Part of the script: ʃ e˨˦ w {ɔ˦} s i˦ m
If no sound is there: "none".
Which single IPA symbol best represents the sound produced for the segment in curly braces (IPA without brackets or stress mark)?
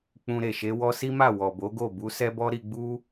ɔ˦